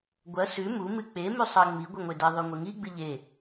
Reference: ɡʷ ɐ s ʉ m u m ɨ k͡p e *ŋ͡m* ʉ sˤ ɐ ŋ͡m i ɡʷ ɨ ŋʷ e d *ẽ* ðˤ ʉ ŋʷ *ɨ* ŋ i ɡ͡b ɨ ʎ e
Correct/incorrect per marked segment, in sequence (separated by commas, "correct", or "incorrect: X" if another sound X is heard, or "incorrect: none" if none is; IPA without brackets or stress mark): incorrect: m, incorrect: e, incorrect: e